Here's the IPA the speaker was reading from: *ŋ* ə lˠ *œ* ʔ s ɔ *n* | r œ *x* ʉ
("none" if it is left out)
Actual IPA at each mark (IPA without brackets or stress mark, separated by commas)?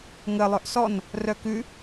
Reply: ŋ, œ, n, k